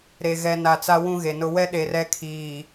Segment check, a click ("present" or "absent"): absent